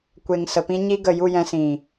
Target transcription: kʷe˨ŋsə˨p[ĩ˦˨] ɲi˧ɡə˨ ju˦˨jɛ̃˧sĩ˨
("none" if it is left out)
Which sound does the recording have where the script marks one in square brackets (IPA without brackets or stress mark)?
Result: ĩ˧